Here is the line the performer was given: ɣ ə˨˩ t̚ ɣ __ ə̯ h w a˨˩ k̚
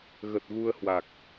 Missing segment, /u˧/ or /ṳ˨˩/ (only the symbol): u˧